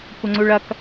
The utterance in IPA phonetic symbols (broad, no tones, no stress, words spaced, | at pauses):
kʷʌŋ͡ǀuɭɐk